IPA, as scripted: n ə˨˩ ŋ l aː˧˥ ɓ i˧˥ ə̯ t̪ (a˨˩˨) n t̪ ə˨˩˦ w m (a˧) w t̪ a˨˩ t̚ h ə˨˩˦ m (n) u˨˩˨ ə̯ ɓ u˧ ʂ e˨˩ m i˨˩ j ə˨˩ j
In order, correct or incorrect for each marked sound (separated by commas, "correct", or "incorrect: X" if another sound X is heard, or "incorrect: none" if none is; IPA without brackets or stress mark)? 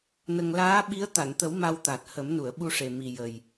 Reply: correct, correct, correct